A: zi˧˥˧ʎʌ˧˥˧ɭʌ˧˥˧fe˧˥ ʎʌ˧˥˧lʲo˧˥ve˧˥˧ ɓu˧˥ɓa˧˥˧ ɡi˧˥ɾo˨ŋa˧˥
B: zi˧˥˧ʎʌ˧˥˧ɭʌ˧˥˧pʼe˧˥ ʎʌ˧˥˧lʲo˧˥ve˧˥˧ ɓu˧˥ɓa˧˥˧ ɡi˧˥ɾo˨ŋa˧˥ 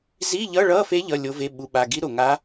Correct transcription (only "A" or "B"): A